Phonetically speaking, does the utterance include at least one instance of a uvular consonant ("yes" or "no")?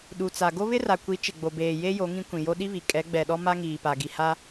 no